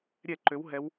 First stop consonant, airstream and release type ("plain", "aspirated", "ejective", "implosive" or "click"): click